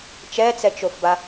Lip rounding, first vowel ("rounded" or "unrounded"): unrounded